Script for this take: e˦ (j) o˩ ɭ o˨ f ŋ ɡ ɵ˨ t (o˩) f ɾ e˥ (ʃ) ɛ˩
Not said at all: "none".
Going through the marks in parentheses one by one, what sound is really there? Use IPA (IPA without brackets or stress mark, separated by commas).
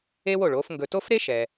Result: w, o˥, ʃ